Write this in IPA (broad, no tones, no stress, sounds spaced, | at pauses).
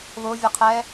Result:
β ʊː vʲ ɐ qʰ ɛː